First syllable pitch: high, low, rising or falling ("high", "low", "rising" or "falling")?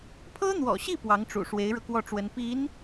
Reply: high